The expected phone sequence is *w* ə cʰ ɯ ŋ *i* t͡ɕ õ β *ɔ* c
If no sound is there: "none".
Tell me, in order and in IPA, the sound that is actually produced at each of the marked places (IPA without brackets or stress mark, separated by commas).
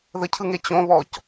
ð, e, ɔ